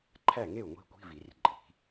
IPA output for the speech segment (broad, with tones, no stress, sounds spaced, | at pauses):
ǃʰ æ˥˩ ŋ e˥˩ u̯ ŋʷ i̤˧˥ kʷ i̤˧˥˧ v i˨˩˦ r ǃʼ i̤˨˩˦